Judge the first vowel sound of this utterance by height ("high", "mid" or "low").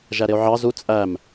low